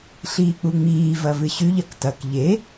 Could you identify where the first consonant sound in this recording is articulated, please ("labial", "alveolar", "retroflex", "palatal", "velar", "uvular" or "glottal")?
alveolar